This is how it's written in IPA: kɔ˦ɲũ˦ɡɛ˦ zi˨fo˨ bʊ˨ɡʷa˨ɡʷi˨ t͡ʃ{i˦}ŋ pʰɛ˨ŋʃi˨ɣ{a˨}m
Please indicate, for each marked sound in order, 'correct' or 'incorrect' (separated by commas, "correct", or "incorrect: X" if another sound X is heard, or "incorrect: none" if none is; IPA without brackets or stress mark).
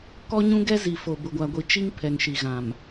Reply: correct, incorrect: ã˨